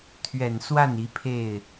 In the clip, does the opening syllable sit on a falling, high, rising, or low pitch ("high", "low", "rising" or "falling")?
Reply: low